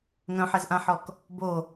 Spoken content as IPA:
ŋ œ̃ ħ ɛ z ʔ ã ħ ɔ k | b o

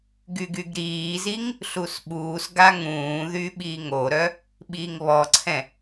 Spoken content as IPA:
ɡ y ɡ y ɡ ɾ iː z i ŋ | ɬ u s ɓ uː s ɡ a ŋ ũː ð y ɓ iː ŋ o ɾ œ | ɓ iː ŋ β ɔ ǀʰ ɛ̃

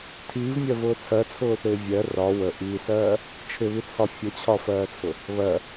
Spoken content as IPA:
tʰ iː v mʲ ɜ v ʊː t͡sʰ ɜ t͡sʰ ʊː θ ɪː vʲ ɜ r ɒ w ə ʔ i s ɜː | t͡ʃʰ ɪ β i t͡sʰ ɒ fʲ ə t͡ɕʰ ɒ f ɜː t͡sʰ ʊ | β ɜ

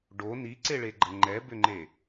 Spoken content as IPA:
ɖ o n i ǀ e ɭ e ɡ͡ǃ ə ŋ͡ǃ ɛ b ʏ ŋ͡ǃ e

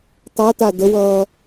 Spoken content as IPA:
tˤ ʌ t a d ə w ʌː

